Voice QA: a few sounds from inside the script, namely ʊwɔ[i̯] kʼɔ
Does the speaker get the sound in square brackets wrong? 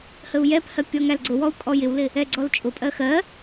yes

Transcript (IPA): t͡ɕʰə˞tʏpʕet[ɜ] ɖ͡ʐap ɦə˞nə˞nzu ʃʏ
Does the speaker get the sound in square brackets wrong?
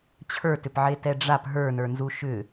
yes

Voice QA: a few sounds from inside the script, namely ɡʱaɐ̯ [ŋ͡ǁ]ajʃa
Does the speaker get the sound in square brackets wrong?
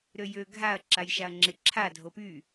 yes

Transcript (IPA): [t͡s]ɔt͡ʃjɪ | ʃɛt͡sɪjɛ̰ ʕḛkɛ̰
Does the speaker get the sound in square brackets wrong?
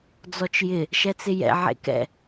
yes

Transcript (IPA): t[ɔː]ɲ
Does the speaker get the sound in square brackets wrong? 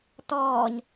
no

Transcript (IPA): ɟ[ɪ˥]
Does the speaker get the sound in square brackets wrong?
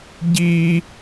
yes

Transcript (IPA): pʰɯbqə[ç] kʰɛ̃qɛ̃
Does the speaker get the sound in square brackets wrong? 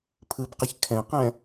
no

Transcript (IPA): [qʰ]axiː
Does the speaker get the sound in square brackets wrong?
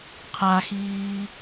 no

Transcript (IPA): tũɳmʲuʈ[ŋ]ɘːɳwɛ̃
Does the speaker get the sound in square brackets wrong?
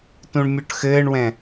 yes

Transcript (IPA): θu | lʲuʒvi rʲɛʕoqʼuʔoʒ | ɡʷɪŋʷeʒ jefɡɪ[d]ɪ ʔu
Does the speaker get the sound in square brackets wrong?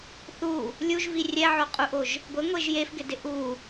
no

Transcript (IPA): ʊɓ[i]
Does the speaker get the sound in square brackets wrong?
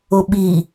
no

